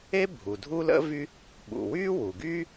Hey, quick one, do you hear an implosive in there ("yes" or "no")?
yes